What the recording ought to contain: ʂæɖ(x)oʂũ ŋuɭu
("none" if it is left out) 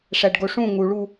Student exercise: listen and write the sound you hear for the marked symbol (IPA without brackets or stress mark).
ɡ